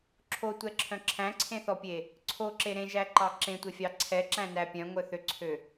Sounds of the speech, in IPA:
ǁʰ o tʷ ɛ ǁʰ œ̃ ǁʰ æ̃ ǀʰ ẽ θ ɔ pʲ e | ǀʰ o ǁ e ɾ ẽ ʒ æ ǃ ɑ ǁ ẽ tʷ e fʲ ɑ ǀʰ ɛ ǁ æ̃ n æ pʲ œ̃ ŋʷ œ θ ø ǀʰ ø

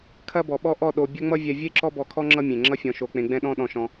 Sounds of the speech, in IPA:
kʰ ɐ˦ b ɔ˨ ɓ ɔ˦ ʔ ɔ˦˨ ɗ o˧ bʲ ɐ˦ ŋ͡m ʌ˦ vʲ ɛ˧ vʲ e˦ ǁ ɔ˦ b ɔ˧ kʰ ɔ˦ ŋ͡ǁ ʌ˦ mʲ ẽ˨ ŋ͡ǁ ʌ˦ fʲ ɔ̃˧ ʃ o˧ k͡p ẽ˧ ɡ͡b ɛ̃˦ ɗ ɔ̃˦ ɗ ɔ̃˧ ʃ ɔ̃˧

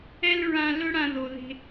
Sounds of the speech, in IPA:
ɛ˦ l ɹ ã˧ l ɵ˦ ɽ ã˧ ð o˨ ð e̤˧

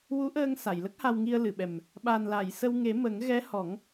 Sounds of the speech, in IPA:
w u˧˥ ʔ əː˧ ŋ s a˨˩˨ j l ə˦˥ k̚ h a˧ w ŋ i˧ ə̯ l ɨ˨˩˨ ɓ ɛ˨˩ m | ɓ a˨˩ n l a˨˩˨ j s ə˧ w ŋ e˨˩˦ m ə˨˩˦ ŋ ɣ ɛ˧˥ h ɔ˨˩˦ ŋ

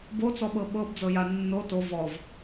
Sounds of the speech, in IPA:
b o t͡s ɔ ɓ ɤ ɓ ɤ b d͡z ɤ j a nː o t o v ɔ v

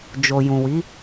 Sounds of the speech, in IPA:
d͡ʒ o˨ j ũ˨ w i˨˦

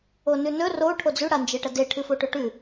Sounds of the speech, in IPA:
o n ʉ n ɵ r o ʈʰ o d͡z ʉ ɽ a n d͡ʒ e ʈ ɐ d e ʈʰ ɨ f o ʈ ɵ ʈ ʉ

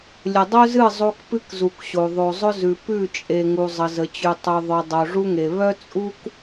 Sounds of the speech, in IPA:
lʲ ə˨ dˤ œ˦ z ɨ˦˨ zˤ o˦ k p ɨ˦ k z u˨ k ɕ o˨ ðˤ o˨ zˤ ʊ˦ z ʉ˨ p ʉ˦˨ t͡ʃʼ e˨ ŋ u˨ zˤ ə˨ z ə˨ t͡ɕ ʉ˨ tˤ ʉ˨ ðˤ œ˨ dˤ o˨ ʐ u˦ ŋ e˨ β œ˦ t͡sʼ u˦ k

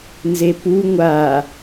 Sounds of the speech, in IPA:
n z e p u ŋʷ a

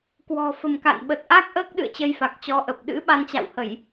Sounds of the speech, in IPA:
k w ɔ̤˨˩ f ə̤˨˩ m k a̰˧˨ n ɓ ə˨˩ t̚ ʔ a˦˥ k̚ ʔ əː˦˥ k̚ ɗ ɨ̰˧˨ ə̯ t͡ɕ ə˧ j f a˨˩ k̚ t͡ɕ ɔ˨˦ ʔ ə˨˩ p̚ ɗ ɨ̰˧˥ ɓ a˧ n t͡ɕ a̰˧˨ w h ə˧˩˨ j

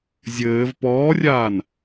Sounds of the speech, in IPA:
zʲ ɘː v p ɔː rʲ aː n

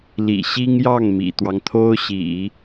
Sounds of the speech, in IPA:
l ḭ˨˩ ɕ i˥ ŋ j ɑ˥˩ ŋ m ḭ˨˩ t̪ w ɑ˦ ŋ t̪ʰ o˥ ʊ̯ ɕ ḭ˨˩˦

